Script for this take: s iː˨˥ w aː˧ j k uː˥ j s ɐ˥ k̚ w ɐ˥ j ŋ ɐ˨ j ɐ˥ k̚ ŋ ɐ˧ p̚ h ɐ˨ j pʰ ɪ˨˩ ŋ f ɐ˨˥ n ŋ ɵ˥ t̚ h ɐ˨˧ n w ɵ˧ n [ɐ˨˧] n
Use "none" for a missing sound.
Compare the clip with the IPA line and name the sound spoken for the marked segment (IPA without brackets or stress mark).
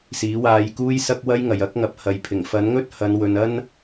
ɐ˥